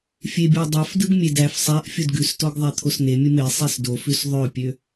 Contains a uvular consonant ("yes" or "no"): no